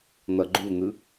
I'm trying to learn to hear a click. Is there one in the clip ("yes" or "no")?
yes